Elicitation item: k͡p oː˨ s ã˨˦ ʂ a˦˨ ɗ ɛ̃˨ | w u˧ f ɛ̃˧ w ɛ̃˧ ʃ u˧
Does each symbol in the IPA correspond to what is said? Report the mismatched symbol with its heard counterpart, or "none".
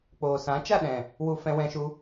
ʂ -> t͡ʃ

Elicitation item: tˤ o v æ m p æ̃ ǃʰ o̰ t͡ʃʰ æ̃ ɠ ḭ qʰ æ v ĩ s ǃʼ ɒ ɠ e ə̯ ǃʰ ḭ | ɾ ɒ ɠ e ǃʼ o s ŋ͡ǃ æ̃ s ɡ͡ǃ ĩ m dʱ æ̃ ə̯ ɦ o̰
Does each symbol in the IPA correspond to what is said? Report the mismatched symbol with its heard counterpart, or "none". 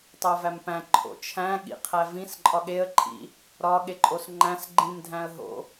none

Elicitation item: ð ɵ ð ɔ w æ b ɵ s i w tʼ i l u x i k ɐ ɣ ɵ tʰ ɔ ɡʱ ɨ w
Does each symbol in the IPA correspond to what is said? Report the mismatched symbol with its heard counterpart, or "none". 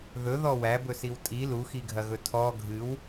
k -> ɡʱ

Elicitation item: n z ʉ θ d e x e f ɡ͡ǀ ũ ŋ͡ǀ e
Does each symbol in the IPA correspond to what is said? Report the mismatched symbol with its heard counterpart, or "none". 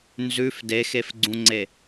θ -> f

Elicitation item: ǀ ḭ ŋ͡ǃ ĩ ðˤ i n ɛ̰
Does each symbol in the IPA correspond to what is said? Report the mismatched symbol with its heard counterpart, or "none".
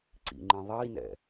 none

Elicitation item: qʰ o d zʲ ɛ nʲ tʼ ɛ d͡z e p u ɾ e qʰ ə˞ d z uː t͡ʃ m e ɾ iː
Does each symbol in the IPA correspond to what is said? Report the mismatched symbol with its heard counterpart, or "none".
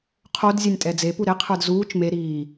none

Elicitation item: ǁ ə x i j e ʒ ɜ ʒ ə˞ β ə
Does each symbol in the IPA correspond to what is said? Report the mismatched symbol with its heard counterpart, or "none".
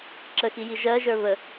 e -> i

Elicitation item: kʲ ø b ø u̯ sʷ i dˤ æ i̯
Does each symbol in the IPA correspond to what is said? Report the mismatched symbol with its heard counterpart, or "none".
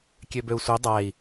none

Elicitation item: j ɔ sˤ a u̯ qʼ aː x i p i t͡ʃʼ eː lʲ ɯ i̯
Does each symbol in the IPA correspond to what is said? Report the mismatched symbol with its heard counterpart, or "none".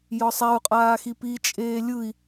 none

